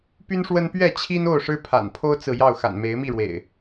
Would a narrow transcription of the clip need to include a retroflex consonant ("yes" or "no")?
yes